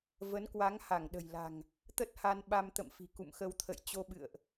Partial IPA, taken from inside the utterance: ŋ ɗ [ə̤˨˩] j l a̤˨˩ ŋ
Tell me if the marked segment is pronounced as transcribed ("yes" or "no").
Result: yes